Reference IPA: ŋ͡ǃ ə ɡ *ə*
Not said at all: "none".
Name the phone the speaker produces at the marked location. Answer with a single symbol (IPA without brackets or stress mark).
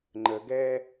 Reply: ɛ